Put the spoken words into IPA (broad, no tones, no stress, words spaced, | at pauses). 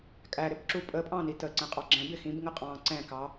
kʼæɾɪbǁu pʼəpʼɑ̃ni təǀɛ̃qʼɑ ɡ͡ǁɛ̃bɪ xĩbŋə qʼɑ̃ ǀɛ̃kɑ